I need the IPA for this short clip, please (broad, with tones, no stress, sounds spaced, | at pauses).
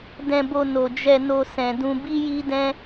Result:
d ɛ̃˧ b o˧ n o˨ d͡ʒ ɛ˧ n o˧ s ɛ̃˨ d ũ˧ b i˦ j i˦ d ɛ̃˦